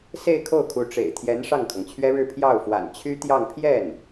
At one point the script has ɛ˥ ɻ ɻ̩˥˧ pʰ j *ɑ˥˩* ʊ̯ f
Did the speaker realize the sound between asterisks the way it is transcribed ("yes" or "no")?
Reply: yes